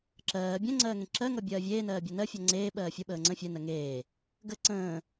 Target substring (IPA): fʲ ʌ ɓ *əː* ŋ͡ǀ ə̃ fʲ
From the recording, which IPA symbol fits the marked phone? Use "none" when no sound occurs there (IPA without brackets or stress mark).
əː